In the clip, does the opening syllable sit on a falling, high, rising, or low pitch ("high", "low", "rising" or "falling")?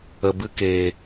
low